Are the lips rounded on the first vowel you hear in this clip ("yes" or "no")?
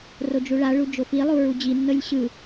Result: yes